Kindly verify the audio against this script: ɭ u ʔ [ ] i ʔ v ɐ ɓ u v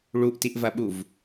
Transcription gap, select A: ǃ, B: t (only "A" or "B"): B